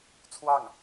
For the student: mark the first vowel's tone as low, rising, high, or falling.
falling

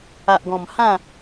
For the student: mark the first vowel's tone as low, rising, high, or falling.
low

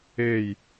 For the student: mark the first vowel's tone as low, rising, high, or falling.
falling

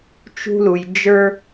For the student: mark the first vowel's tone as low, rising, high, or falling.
high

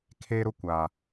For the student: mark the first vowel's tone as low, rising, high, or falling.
high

